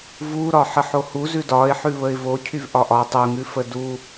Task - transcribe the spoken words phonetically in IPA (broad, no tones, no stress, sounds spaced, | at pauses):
v u ɾ ɒ ħ ə ħ o h u z ʉ d ɒ ɪ̯ ħ ʉ β ə ɪ̯ v o cʰ y v ʔ ɒ ʔ ɒ tˤ u ŋ ʉ f ə d u